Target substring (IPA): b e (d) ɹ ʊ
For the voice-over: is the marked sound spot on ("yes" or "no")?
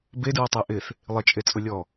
yes